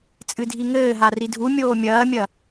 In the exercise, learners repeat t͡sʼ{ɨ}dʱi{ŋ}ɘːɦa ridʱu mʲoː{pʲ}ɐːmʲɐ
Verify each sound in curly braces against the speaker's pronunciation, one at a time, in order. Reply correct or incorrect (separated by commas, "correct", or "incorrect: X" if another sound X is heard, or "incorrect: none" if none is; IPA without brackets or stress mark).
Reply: correct, correct, incorrect: mʲ